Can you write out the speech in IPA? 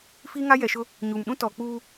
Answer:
fiː˦ŋa˦ jɛ˨ʃʊ˦ | ɲu˨m ɗũ˦tɔ˨k͡puː˦

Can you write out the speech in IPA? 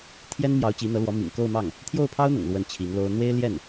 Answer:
t̪ʰjɛ˥nmjɑ˧˥ʊ̯ t͡ɕi˧˥n̪ɤ˧˥lwɔ˧˥ mḭ˨˩ŋko˥˧ʊ̯mɑ˥˩ŋ | t̪ʰjo˥˩ʊ̯pʰɑ˥ʊ̯n̪ʊ̰˨˩ŋ lwə˥˩nt͡ɕʰi˧˥ŋlo˥ʊ̯ n̪we˥ɪ̯ljɛ˥˩n

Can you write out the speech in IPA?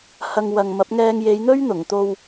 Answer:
hɐ˨ŋ wɐ˨ŋmɐ˨˥p̚ŋɛː˧ŋ je˨˧jn̪ɵ˥ɥ n̪ʊ˨˩ŋt̪o˧w

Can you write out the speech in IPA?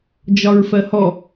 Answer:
d͡ʒɒɹfɜhɔ

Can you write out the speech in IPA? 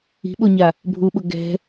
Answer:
i̤ɓoɲa | bʱuɓʊ ɡɛ̤

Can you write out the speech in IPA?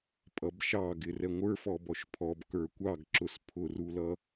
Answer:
pʼʌbʃɑɡɪ rɛŋʷə˞ fɔbɔʃpʰɔb kə˞kʷɑɡǁʊs pʰʊrulʌ

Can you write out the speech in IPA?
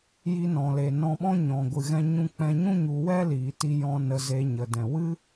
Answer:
ji˧nɔ̃˨le˨ nɔ̃˧ɓɔ̃˦ ɲɔ̃˨ɡʷɨ˨ ɣɛ̃˧ɲũ˧k͡pɛ̃˧ɲũ˦ ɲu˧wɛ˦liː˨ti˧ jɔ̃˧ nə˧ze˧ɲə˨ dɛ̃˨ wɨ˦

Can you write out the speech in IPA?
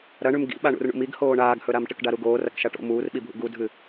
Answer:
ɾɐɳʉm ɡḭ ɓaɳṵrɳṵmiɡ hoːɳaːɡhɵɾam ʈɨkɖaɾuɡoːr ɐkʃaʈo̰ muːrɓibʱṵ ɡudʱɨ

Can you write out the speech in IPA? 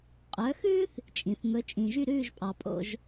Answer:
qʼœ˩˥xʉː˥θ | t͡ʃʼĩ˩θ mɵ˩˥t͡ʃʼĩ˩ʒy˥˩ ɾʉː˥˩ʒpʼɑ˩pʼo̰˥˩ʒ

